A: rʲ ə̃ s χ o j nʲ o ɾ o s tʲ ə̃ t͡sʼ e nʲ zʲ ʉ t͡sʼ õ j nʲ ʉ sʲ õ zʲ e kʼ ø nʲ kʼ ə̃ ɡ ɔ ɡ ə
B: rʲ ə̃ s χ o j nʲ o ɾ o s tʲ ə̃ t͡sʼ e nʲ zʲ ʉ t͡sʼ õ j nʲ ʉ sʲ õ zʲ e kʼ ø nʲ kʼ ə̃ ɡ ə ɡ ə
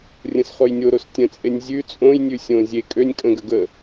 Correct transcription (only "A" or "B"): B